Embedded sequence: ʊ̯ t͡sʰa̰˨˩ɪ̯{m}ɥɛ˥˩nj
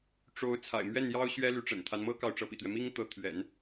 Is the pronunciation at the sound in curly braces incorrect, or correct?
correct